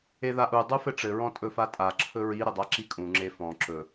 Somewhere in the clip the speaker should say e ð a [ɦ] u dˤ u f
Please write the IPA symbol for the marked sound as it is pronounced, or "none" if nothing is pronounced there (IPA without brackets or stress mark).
ʔ